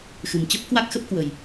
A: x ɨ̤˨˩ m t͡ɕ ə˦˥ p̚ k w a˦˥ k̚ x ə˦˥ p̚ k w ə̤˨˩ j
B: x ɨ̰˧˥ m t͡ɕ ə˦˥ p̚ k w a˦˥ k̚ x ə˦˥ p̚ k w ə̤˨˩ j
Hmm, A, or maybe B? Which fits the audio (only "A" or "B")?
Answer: A